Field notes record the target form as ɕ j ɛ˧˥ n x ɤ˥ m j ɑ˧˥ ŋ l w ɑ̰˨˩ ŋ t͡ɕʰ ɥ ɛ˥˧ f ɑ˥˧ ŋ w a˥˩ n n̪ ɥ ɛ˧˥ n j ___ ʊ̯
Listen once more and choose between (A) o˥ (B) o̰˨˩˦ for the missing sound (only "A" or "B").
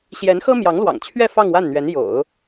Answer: B